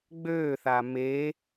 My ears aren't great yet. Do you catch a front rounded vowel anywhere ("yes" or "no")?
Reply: yes